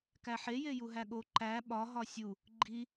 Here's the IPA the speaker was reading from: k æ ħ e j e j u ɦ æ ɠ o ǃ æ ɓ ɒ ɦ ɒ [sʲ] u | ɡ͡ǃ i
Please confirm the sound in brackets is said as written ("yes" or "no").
yes